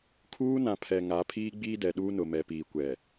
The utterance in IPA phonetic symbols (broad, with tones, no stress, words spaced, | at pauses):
kʰuː˦nã˨pʰɛ˨ ŋa˨˦pʰiː˦ɡ͡biː˦ dɛ˨ɗuː˦nʊ˨mɛ˨ piː˨kʷɛ˨